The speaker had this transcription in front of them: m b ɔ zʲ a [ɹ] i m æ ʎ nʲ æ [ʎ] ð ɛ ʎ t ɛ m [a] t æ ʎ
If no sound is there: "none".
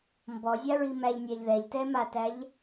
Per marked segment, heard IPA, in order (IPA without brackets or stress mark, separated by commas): ɹ, ʎ, a